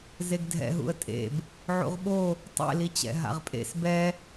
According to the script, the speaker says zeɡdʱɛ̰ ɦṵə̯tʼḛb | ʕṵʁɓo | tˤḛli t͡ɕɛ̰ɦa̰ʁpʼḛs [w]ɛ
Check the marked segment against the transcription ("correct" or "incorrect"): incorrect